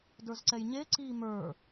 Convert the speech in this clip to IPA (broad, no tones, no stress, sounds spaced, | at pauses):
d ə˞ z ǀ ɛ j ɲ e ǀ iː m ə˞